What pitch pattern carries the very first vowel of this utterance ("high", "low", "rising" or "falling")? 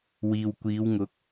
low